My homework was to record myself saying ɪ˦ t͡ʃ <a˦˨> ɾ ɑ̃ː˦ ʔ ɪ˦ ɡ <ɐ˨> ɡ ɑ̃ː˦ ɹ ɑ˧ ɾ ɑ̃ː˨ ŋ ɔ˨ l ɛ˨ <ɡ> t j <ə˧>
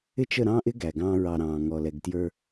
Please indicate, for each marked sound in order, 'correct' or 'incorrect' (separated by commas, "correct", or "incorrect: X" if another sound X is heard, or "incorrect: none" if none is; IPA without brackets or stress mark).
incorrect: ə˦˨, incorrect: æ˨, correct, incorrect: ə˞˧